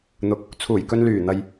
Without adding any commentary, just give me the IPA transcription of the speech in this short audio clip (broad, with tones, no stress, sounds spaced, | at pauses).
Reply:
n̪ ʊ˨˥ k̚ | t͡sʰ uː˨˩ j k ɵ˨ n l yː˨˩ n̪ ɐ˨ j